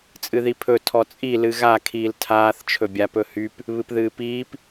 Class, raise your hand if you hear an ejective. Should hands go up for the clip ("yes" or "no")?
yes